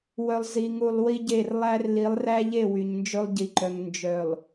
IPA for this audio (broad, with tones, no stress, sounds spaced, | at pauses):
w œ˨ lˠ z i˨ ŋ u˨ lˠ w i˦ ɟ e˦˨ r lˠ æ˦ r l i˨˦ lˠ r æ˦ ʎ e˦˨ w y˨ ɲ n d͡ʒ ɵ˦ lˠ ɟ i˨ ǃ œ˨ ŋ n d͡ʒ œ˨ lˠ